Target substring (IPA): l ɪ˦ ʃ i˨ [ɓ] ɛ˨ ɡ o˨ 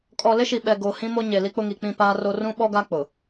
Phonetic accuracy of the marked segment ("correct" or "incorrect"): correct